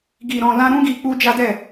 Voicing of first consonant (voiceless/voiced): voiced